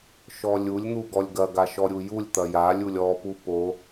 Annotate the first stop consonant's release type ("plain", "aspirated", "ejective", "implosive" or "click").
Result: plain